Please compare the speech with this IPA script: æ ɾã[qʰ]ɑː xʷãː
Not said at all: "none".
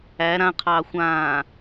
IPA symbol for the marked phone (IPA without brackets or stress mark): qʰ